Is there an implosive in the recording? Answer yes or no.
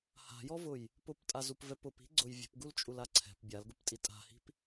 no